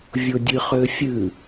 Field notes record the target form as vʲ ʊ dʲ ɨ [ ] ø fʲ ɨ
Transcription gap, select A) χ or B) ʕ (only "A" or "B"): A